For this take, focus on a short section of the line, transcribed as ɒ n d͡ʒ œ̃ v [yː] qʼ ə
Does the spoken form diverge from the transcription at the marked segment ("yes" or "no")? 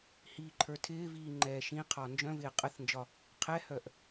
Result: yes